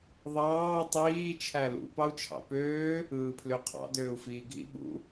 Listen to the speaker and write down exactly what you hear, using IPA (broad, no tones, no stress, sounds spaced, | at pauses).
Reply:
ðˤ ɑː tˤ iː t͡ʃʰ æ l ṵ p ɑ u̯ t͡ʃʰ ɑ̰ p øː | ɯː pʰ l ø qʰ ɑ̰ d øː u̯ f iː ɡʱ ḭ ɓ ṵ